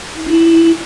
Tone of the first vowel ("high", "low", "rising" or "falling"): high